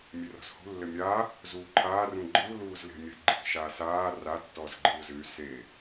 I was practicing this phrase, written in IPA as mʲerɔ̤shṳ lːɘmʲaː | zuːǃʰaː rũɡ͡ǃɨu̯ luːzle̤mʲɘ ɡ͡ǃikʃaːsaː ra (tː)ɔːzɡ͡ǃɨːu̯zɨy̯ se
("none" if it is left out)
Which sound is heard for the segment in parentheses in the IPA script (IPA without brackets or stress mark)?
tː